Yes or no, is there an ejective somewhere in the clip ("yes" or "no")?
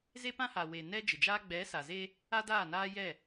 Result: no